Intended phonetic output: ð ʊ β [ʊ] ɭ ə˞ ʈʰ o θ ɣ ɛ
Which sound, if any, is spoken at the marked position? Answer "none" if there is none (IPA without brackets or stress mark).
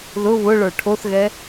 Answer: ʊ